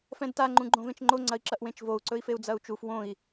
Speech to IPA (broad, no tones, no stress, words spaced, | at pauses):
fɛ̃dta ŋ͡ǃũɡ͡ǃõvẽt͡ʃŋ͡ǃo ŋ͡ǀɐi̯ǁɐʔwẽt͡ʃvou̯ ǀɵi̯feu̯d͡zɐu̯t͡ʃuf wõi̯